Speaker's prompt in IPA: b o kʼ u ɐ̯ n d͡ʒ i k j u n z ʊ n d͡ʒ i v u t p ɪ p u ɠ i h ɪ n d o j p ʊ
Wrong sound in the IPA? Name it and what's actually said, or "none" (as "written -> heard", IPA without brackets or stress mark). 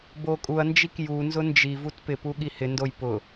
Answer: none